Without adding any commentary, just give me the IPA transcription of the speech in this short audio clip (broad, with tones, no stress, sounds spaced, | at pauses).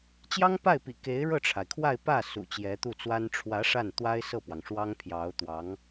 t͡ɕ j ɑ˥ ŋ p a˥˩ ɪ̯ p ḭ˨˩ k e˧˥ ɪ̯ ɻ ɤ˥˩ ʈ͡ʂʰ a˩ ɪ̯ kʰ w a˥˧ ɪ̯ p ä˥˩ s ṵ˨˩ t͡ɕ j ɛ˧˥ t̪ u˥˩ t͡s w a˥ n ʈ͡ʂʰ w ä˧˥ ʂ a˥˩ n t̪ w a˥ ɪ̯ s ɤ˥˩ p w ɑ˩ ŋ ʂ w ɑ˥ ŋ pʰ j ɑ˧˥ ʊ̯ t̪ w ɑ˧˥ ŋ